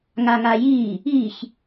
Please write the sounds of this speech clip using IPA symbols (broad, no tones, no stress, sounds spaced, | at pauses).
ŋ a ŋ a j iː | i ç